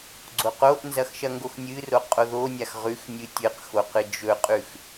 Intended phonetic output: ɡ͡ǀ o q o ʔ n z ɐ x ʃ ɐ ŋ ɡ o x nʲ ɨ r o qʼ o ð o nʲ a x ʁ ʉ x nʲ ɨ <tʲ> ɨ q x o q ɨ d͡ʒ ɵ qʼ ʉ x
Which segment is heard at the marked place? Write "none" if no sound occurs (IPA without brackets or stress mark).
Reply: tʲ